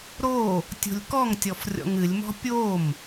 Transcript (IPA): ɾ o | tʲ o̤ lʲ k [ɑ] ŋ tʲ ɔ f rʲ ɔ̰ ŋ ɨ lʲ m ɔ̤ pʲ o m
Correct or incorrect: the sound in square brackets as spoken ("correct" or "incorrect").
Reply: incorrect